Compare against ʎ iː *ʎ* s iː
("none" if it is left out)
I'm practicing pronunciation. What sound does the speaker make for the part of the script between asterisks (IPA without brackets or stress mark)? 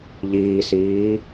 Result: none